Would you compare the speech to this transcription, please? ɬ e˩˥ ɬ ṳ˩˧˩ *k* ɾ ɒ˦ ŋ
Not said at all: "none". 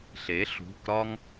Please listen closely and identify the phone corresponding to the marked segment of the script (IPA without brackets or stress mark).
k